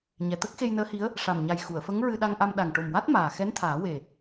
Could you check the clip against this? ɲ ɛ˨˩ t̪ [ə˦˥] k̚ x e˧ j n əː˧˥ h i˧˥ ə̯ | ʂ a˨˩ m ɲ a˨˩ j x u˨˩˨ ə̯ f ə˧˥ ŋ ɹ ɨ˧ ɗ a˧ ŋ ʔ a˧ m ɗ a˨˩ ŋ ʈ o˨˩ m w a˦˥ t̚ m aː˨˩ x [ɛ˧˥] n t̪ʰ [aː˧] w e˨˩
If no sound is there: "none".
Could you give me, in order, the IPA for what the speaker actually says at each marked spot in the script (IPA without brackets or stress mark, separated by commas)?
ə˦˥, ɛ˧˥, aː˨˩˦